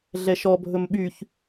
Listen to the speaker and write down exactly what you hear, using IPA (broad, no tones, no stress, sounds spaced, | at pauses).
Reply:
ɮ ɛ ʃ ɔ bʱ ɵ m ɓ y ç